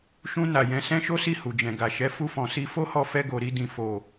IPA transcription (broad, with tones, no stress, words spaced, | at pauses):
ʃũ˧ na˨jɛ̃˨˦ sɛ̃˦ ʃo˦si˦˨ hu˨d͡ʒɛ̃˨ ɡa˨ ʃɛ˨˦fu˧fɔ̃˨si˧ fo˦hɔ˧ fɛ˧ɡo˨ɾi˧ dĩ˨fo˨